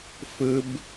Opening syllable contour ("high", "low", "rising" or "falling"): high